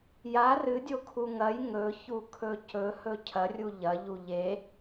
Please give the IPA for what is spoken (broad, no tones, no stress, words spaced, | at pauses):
ja rɨdʲokʰu ŋɐj ŋɵçukʰɵ cɵhɵ cʰɐrʲu ʎɐʎu ʎe